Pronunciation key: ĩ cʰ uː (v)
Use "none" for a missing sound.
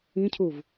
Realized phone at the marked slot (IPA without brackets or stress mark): v